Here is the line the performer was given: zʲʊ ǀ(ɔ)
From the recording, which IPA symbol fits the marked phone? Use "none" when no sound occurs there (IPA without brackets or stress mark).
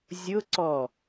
ɔ